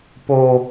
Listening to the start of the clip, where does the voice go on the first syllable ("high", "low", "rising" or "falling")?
low